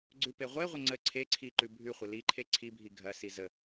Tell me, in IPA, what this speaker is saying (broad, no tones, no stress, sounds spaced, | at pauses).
ɡ͡ǀ ʉ p e ʁʷ e ʁʷ ə ŋ͡ǀ ə ǀʰ e ǀʰ i ǃ ʉ bʱ ʉ χʷ ə l i ǃʰ e ǀʰ i bʱ i ɡʱ ɐ s i z ə